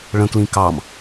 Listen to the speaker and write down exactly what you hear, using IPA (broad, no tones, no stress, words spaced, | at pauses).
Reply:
ɭə̃klĩ kɑm